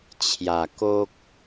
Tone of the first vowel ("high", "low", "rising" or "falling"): low